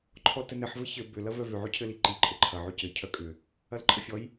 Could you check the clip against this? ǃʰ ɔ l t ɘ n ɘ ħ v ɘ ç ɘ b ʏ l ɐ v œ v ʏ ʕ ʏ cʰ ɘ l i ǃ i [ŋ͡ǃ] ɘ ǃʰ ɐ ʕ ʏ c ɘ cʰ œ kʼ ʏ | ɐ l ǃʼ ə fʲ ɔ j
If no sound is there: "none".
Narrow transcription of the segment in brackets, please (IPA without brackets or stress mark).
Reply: ǃʼ